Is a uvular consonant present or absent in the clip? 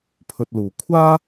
absent